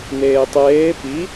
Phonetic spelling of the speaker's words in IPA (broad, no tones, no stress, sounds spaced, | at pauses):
n̪ eː tˤ eː p i